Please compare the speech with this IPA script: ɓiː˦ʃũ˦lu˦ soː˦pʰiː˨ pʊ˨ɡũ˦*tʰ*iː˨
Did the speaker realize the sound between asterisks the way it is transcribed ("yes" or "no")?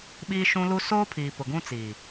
no